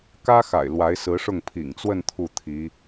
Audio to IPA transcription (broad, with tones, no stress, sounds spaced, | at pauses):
k ä˥ x a̰˨˩ ɪ̯ l w a˧˥ ɪ̯ s ɹ̩˧˥ ʂ ʊ˥˩ ŋ pʰ ḭ˨˩ ŋ t͡s w ə˥˧ n t̪ʰ u˥˩ t̪ʰ i˧˥